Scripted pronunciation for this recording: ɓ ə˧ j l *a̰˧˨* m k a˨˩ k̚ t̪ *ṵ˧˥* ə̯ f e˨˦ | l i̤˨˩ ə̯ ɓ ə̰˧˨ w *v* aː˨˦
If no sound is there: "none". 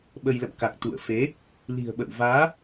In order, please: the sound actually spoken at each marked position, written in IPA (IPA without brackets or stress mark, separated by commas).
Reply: ə̰˧˨, ṵ˧˨, v